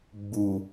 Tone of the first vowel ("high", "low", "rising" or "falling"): low